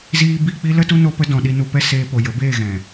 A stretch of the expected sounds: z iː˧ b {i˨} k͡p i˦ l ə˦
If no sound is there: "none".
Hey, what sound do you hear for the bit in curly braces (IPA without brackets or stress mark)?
i˦˨